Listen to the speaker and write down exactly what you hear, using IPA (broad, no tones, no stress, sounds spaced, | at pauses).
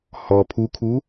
h ɔ pʰ u kʰ u